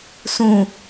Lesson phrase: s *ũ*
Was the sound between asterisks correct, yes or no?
yes